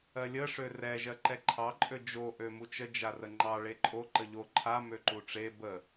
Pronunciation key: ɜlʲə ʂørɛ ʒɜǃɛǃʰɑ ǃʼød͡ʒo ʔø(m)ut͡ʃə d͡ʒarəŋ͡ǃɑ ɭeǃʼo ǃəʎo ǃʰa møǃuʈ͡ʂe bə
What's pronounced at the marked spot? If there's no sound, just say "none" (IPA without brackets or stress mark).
m